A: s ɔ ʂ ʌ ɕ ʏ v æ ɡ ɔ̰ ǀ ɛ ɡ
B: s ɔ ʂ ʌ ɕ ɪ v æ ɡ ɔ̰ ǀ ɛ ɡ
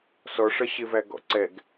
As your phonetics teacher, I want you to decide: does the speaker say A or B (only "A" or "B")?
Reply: B